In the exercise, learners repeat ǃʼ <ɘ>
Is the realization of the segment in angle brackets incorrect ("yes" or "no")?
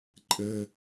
no